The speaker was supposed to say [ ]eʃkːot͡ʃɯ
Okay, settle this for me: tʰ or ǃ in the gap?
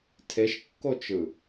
tʰ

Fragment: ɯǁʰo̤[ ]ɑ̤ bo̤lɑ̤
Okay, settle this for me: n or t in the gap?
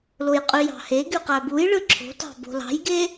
t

